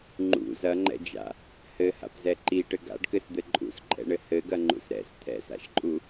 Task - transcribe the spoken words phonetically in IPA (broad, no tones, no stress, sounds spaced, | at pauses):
ŋ͡ǃ ṵ z ɐ ŋ͡ǃ ɛ̰ d͡ʒ a̰ | h ɘ h a̰ p z ɛ ǃ i ʈ ɘ ɡ a̰ ɖ k ɘ s d̪ ɘ ǃʼ ṵ s ǃʼ ɛ̰ ɳ ɘ h ɘ ɡ ɐ ŋ͡ǃ ṵ s ɾ ɛ̰ s t̪ʰ ɛ̰ s a̰ ʃ ǃʼ u